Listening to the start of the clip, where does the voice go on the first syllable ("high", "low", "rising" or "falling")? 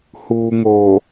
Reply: low